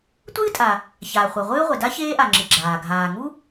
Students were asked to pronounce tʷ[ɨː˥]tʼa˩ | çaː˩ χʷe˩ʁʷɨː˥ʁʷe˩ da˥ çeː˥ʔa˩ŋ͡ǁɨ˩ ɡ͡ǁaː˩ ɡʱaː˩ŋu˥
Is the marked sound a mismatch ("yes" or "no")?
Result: no